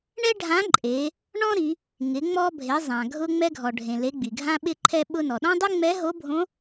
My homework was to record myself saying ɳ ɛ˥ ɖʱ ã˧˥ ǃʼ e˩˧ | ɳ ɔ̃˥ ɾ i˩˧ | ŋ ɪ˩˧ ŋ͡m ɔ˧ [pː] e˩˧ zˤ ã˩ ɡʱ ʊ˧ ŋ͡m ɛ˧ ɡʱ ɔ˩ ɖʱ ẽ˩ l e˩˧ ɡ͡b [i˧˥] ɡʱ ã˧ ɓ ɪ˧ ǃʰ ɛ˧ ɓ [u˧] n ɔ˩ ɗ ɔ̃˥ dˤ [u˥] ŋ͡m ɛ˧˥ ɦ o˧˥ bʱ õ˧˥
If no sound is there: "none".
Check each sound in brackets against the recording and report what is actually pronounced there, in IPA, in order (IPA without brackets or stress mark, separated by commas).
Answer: bʱ, i˩, ʊ˧, u˥